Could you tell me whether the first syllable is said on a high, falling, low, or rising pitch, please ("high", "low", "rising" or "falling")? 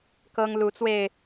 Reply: high